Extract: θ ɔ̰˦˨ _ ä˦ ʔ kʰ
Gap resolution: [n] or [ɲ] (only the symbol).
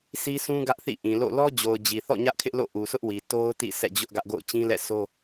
ɲ